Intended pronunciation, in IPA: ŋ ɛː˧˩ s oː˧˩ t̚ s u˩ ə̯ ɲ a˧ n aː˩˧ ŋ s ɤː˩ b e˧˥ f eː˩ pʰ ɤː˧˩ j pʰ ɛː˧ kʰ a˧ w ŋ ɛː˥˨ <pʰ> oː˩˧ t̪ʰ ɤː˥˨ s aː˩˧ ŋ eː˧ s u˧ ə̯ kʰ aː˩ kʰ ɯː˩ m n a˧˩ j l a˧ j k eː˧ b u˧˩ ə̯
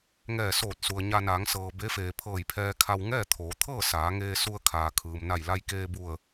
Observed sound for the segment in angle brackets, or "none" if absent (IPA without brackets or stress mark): t̪ʰ